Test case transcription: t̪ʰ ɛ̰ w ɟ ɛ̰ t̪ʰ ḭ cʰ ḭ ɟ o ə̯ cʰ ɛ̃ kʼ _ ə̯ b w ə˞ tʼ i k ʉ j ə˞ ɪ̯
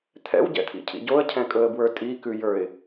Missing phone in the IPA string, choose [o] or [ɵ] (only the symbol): ɵ